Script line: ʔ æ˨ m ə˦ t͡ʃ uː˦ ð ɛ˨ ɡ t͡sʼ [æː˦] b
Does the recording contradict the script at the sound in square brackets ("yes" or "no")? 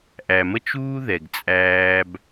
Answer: no